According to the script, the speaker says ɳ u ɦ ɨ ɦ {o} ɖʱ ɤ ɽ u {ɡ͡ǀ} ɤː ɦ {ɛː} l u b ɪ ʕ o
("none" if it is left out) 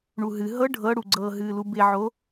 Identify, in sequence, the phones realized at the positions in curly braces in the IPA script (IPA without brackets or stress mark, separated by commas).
ɤ, ɡ͡ǀ, ɨː